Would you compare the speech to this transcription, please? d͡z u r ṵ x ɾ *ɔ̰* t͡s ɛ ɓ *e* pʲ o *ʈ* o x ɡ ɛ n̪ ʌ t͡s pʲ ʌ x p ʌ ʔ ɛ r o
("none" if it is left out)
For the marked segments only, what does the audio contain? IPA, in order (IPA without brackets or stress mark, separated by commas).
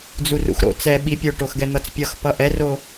o̰, i, ʈ